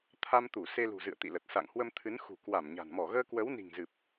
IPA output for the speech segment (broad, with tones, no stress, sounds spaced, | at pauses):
t̪ʰ a˧ m t̪ u˧˩ s e˧ l ṳ˨˩ z ɨ̰˧˨ ə̯ t̪ ḭ˧˨ l ə˨˩ t̚ s a̰˧˨ ŋ h w ə˧ m t̪ʰ ɨ˨˦ n x ṳ˨˩ k w a˧˩ m ɲ a̤˨˩ n m ɔ˧˩ ɣ əː˧ k w ə˨˦ w n i̤˨˩ ŋ z ɨ˨˩ p̚